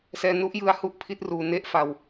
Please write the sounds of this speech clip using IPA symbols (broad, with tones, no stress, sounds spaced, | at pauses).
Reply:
s ɛː˧ n u˦˥ ʔ j ɯ˧ a̯ h u˥˩ ʔ pʰ i˦˥ t̚ r uː˧ n e˥˩ ʔ f a˧ w